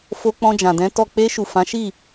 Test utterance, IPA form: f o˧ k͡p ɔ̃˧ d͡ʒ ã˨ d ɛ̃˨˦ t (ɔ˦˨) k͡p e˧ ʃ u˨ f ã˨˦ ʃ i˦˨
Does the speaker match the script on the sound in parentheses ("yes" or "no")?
yes